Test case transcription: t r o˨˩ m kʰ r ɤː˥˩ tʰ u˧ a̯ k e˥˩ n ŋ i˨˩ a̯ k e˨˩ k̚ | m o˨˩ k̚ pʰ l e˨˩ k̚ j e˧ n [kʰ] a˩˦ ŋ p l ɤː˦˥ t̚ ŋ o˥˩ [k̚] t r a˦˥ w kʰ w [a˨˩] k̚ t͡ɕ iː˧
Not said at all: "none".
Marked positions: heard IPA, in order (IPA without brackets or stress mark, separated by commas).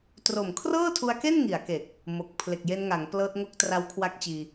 ŋ, k̚, a˦˥